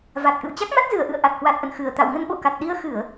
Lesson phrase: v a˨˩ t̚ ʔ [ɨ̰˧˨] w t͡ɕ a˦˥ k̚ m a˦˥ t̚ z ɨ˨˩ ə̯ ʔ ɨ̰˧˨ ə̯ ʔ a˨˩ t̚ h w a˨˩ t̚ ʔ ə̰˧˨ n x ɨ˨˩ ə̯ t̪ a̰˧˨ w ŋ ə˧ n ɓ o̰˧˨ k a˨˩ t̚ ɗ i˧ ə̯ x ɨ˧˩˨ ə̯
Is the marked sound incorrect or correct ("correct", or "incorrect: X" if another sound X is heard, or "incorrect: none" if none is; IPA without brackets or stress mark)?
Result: correct